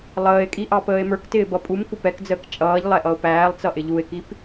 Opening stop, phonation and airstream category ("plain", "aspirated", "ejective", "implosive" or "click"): ejective